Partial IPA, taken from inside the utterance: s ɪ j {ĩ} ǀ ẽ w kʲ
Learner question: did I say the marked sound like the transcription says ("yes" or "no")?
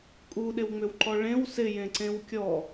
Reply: no